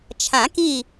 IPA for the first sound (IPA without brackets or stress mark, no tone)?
t͡ʃʰ